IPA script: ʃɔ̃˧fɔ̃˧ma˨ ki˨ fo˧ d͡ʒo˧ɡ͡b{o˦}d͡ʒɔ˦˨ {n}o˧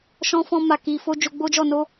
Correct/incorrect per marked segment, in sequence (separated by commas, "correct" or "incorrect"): correct, correct